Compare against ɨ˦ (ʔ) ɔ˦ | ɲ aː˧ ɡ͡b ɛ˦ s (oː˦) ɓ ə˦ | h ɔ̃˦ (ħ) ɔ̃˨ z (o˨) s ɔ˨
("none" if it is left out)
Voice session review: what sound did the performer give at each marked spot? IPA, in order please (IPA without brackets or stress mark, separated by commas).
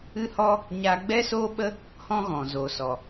h, oː˦, ɣ, o˨